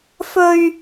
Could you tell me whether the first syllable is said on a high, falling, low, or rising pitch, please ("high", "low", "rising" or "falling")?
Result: high